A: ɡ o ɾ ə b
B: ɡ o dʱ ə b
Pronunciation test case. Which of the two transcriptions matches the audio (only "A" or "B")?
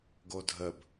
B